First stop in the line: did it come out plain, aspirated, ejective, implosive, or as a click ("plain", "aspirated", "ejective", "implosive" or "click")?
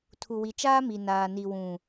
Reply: aspirated